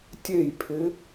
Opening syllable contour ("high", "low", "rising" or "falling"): falling